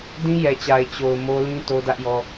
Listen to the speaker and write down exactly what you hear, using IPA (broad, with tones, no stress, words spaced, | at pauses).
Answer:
dĩ˦jɛ˨t͡ɕa˨ɪ̯ t͡ɕo˨ʊ̯ mo˦ lĩ˦to˦ dä˦ʔjɔ˦